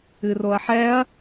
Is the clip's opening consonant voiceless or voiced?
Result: voiced